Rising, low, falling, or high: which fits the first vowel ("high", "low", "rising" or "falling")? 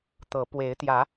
rising